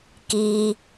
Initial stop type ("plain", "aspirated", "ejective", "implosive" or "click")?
plain